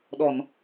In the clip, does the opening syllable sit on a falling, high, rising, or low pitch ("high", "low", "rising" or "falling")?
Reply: low